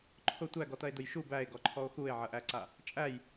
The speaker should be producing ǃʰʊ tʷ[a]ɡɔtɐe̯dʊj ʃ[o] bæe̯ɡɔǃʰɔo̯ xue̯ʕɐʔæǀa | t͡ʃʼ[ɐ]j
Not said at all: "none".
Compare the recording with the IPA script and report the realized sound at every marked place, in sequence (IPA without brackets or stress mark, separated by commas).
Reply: æ, u, æ